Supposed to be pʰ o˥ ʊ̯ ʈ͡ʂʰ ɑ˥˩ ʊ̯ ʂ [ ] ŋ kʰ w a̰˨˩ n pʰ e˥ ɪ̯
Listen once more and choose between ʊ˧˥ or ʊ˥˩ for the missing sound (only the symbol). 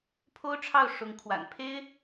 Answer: ʊ˧˥